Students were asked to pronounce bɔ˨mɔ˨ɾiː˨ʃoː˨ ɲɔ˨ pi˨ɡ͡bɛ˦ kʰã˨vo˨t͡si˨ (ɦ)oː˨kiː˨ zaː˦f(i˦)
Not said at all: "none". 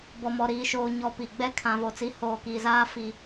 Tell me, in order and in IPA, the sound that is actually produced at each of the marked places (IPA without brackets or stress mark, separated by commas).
h, i˦